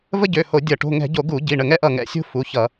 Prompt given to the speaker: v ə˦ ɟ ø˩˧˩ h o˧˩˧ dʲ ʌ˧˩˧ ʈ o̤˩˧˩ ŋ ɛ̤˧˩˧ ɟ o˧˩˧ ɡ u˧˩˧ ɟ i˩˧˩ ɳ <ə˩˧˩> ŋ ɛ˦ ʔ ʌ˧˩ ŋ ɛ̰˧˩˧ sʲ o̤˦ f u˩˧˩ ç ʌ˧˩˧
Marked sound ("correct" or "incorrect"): incorrect